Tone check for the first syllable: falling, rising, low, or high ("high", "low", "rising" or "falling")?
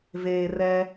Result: low